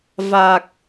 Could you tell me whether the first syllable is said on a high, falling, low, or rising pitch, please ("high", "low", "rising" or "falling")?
low